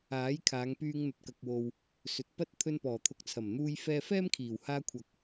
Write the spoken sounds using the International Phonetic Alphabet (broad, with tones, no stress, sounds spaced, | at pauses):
aː˨˥ j kʰ aː˨˧ ŋ p yː˧ ŋ n̪ ɵ˨ t̚ k ɐ˨ k̚ w o˨ w | s ɵ˨ t̚ p ɐ˥ t̚ t̪ʰ ɵ˧ n p ɔː˨˩ t̪ʰ ʊ˨ k̚ t͡sʰ ɐ˨˩ m n̪ uː˧ j f ɛː˧ f ɛː˥ m kʰ iː˨˩ w h aː˧ kʷʰ ɐ˨ k̚